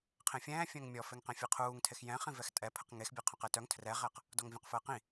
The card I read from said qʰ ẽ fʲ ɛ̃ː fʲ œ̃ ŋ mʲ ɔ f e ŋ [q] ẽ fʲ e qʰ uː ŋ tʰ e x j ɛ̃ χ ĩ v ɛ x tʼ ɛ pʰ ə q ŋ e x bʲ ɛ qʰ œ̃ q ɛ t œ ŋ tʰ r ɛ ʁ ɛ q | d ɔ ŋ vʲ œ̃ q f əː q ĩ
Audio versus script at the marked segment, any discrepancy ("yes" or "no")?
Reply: no